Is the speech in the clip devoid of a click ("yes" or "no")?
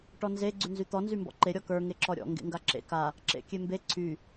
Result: no